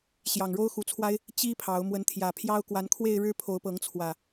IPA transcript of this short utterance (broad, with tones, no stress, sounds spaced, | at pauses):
ɕ j ɑ˨˩ ŋ ɻ o˦ ʊ̯ x u˨˦ t͡sʰ w a˦ ɪ̯ | t͡ɕ i˦ pʰ ɑ˨˦ ʊ̯ m w ə˨˦ n t̪ʰ j ä˨˩ pʰ j ɑ˦ ʊ̯ k w a˨˦ n kʰ w e˥˨ ɪ̯ ɻ ɻ̩˦ pʰ o˨˦ ʊ̯ p ɤ˨˦ ŋ t͡sʰ w ä˨˩